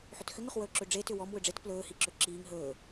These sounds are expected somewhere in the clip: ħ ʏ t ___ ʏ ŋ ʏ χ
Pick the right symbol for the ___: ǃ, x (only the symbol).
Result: x